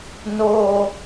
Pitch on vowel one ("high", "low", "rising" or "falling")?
high